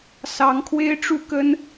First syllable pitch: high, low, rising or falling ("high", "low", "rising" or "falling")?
rising